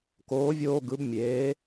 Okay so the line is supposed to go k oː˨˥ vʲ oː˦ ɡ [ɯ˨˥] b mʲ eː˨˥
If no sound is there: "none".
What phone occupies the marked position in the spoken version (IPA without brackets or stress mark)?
ɯ˨˥